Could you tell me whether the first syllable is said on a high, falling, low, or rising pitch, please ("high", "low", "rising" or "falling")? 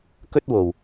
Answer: high